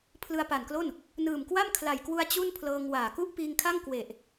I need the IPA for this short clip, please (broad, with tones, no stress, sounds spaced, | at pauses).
pʰ l ɯ˧ a̯ p a˨˩ n k l o˥˩ n | n ɯː˨˩ m k w a˥˩ m kʰ l a˨˩ j k w u˧ a̯ t͡ɕ u˥˩ n pʰ l ɤː˧ ŋ w aː˨˩ k u˥˩ ʔ p iː˧ ŋ kʰ a˥˩ ŋ k w e˨˩ ʔ